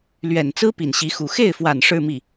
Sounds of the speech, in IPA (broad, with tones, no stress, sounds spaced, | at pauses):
l ɥ ɛ˨˩ n t͡s ɹ̩˥ p i˨˩ n ɕ i˧˥ x u˨˩ x e˥˩ ɪ̯ f w a˨˩ n ʂ ɻ̩˥˧ m i˥˩